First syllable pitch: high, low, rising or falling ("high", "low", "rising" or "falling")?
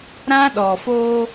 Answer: high